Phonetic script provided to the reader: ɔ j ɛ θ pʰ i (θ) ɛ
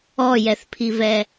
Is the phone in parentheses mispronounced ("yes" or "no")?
yes